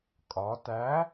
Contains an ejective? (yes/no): yes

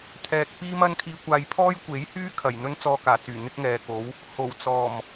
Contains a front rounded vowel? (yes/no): yes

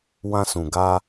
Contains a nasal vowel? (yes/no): yes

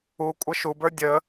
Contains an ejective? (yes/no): yes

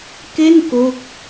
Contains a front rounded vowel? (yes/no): no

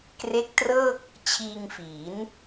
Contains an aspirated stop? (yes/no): yes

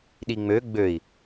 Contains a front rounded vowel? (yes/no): yes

